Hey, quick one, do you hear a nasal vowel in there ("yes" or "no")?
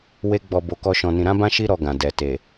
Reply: yes